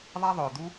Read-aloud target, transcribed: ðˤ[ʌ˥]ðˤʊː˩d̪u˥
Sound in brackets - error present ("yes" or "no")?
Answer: yes